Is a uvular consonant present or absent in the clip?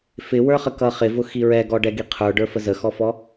present